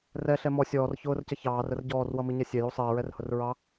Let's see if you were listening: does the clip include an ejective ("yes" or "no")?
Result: no